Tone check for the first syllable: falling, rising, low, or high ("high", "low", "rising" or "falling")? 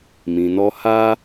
low